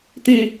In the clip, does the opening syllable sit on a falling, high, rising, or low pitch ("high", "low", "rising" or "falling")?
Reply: low